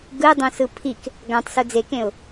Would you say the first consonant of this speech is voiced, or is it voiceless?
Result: voiced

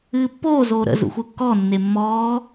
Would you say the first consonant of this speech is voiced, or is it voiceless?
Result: voiceless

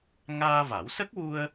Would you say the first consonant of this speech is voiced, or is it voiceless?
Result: voiced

